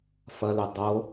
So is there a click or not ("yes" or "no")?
no